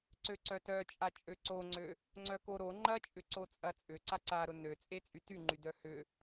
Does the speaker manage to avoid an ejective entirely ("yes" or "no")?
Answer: no